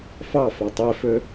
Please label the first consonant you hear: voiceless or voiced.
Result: voiceless